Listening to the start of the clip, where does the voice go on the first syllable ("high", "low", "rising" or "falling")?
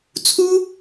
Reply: high